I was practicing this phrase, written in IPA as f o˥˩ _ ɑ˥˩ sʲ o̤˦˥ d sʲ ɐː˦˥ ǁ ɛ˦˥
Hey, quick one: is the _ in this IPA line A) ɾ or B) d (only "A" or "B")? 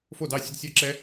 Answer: B